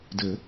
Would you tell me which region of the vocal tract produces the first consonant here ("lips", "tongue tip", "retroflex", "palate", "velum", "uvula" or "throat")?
tongue tip